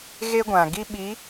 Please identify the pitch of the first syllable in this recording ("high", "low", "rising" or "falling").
high